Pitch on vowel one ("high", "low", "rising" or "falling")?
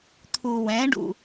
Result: low